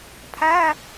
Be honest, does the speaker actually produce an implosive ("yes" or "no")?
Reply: no